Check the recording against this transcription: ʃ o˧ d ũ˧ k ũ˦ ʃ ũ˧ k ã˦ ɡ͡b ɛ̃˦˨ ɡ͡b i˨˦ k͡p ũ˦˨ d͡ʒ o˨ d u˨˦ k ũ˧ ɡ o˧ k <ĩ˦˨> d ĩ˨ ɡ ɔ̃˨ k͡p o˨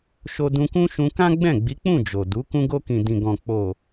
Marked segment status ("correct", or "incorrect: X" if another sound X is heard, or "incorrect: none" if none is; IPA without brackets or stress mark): incorrect: ĩ˨